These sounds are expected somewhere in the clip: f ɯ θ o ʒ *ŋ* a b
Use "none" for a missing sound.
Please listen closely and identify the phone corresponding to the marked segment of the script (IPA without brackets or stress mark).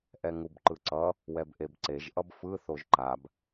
ǃ